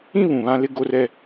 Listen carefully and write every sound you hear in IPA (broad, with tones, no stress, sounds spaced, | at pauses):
ĩ˦ β ũ˨ β ã˦ l ɪ˦ ɡ o˦ r ɛ˦